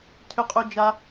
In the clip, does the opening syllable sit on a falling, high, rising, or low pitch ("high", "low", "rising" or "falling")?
high